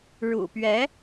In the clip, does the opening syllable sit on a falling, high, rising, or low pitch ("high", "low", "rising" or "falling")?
low